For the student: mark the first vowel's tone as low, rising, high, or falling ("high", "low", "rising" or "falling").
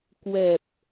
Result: low